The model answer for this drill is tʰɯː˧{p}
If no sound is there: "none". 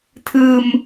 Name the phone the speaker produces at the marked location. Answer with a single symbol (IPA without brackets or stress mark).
m